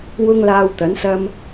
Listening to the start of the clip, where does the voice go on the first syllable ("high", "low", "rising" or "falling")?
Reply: high